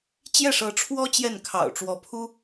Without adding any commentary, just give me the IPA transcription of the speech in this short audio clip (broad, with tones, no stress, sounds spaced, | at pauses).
t͡ɕ j ɛ˥˩ ʂ ɤ˧˥ ʈ͡ʂʰ w ɔ˥ t͡ɕ j ɛ˥˩ n kʰ ɑ̰˨˩ ʊ̯ ʈ͡ʂ w ɔ˧˥ pʰ u˥